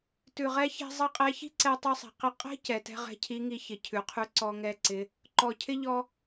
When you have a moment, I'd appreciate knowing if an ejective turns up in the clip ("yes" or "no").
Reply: yes